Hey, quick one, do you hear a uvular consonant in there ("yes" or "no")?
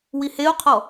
yes